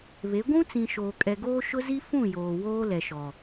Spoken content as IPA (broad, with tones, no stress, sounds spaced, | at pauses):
β e˨˦ ɡʷ ũ˦ t͡s ĩ˨ ʃ oː˨ kʼ ɛ˨ ɡ oː˦ ʃ ʊ˦ z i˦ f ũ˦˨ j oː˨ w oː˦ l ɛ˨ ʃ ɔ˨